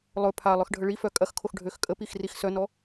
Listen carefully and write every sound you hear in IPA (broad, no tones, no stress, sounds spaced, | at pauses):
lˠ ɵ pʰ a lˠ œ x ɖʱ ə ɭ i f œ kʼ ɐ x kʰ o x ɖʱ ø x kʼ ə p i x r i x s œ n ɔ